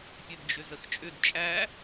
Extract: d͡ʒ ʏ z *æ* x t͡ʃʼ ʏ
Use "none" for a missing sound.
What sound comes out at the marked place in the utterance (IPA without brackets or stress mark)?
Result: ə